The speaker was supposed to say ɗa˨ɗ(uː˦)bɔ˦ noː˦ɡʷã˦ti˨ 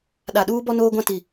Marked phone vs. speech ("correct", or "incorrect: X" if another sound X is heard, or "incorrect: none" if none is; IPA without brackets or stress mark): correct